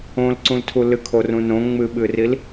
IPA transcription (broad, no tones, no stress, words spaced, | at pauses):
õlǀũltʰu lɨkʰorũ nõ ŋ͡mɨɓɨril